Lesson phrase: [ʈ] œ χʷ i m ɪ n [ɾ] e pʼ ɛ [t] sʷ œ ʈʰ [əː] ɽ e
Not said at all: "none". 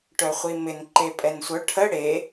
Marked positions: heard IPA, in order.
ʈ, ǃ, n, ə

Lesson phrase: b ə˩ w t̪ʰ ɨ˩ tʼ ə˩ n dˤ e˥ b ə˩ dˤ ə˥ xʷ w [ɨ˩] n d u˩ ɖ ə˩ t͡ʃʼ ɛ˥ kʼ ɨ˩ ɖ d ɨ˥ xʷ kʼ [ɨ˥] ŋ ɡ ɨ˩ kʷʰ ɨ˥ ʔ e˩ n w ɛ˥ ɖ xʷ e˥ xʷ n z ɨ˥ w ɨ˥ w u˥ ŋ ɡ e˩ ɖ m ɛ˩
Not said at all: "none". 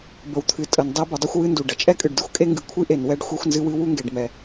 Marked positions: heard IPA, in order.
ɨ˥, e˥

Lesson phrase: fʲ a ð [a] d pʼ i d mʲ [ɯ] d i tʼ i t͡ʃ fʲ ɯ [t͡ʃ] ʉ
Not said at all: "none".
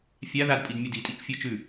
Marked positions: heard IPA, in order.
a, u, t͡ʃ

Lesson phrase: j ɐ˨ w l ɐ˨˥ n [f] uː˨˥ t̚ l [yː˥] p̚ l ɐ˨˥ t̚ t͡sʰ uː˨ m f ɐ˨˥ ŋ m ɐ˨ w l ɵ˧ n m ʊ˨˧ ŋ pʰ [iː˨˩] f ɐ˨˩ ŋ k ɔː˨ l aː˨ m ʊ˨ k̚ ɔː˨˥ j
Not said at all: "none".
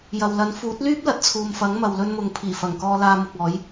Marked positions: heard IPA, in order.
f, yː˥, iː˨˩

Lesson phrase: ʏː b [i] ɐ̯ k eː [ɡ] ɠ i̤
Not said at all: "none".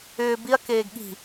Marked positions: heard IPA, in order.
i, ɡ

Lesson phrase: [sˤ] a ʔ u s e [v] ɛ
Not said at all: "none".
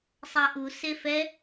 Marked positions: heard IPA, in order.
sˤ, f

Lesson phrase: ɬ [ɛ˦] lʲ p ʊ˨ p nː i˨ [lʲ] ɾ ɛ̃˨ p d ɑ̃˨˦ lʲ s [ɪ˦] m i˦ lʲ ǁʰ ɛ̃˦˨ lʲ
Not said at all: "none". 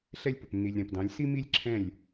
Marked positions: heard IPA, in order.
ɛ˦, lʲ, i˦

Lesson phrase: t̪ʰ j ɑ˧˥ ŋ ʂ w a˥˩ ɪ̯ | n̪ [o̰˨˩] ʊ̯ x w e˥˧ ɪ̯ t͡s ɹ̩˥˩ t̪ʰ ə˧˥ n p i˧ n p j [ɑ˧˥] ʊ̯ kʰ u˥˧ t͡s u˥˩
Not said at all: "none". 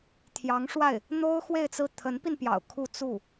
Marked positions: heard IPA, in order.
o˥, ɑ̰˨˩

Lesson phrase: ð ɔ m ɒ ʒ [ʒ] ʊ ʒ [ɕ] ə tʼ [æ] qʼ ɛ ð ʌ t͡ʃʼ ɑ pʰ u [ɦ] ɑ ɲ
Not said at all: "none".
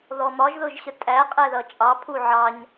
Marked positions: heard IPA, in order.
ð, ɕ, æ, ʕ

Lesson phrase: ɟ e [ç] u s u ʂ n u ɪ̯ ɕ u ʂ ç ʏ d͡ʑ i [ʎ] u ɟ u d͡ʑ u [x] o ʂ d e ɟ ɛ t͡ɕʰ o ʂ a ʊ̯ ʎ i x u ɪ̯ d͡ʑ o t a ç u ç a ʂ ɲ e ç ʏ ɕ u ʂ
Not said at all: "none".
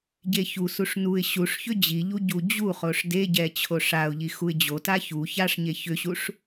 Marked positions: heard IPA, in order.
ç, ʎ, χ

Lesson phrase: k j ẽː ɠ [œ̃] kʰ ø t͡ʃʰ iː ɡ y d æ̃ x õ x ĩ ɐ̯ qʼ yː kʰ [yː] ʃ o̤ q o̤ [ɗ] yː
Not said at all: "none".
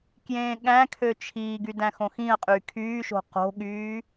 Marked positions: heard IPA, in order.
æ̃, yː, ɠ

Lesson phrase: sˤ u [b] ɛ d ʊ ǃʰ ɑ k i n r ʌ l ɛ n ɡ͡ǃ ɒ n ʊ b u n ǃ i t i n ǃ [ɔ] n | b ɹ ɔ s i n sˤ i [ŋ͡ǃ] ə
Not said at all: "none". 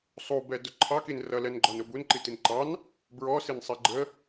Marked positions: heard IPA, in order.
b, ɑ, ɡ͡ǃ

